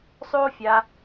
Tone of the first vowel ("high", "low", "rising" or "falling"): high